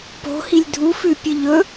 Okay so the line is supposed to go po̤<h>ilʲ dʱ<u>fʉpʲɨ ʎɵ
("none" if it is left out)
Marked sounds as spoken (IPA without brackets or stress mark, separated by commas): h, u